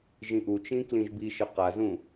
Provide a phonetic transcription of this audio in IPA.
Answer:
ʒ ĩ ʔ u t͡ʃ ĩ k l ĩ ʒ b i ʃ ɘ q a z ũ

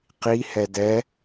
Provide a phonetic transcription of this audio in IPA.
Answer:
q i h ɛ d ɛ

